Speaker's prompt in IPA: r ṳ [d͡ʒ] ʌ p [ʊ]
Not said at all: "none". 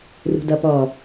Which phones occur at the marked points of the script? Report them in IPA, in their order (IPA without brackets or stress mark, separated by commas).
d, ɔ